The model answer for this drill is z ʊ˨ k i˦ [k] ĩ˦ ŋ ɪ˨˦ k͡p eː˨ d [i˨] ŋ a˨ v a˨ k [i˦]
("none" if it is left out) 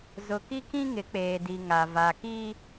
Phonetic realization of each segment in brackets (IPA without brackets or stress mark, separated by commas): k, i˨, i˦